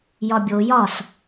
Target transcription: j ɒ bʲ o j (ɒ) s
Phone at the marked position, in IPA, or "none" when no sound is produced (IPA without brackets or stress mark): ɒ